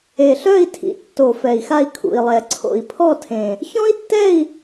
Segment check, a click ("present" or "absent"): present